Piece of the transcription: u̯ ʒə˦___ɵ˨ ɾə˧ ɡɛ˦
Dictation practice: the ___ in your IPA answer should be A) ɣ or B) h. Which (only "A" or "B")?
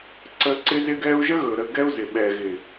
A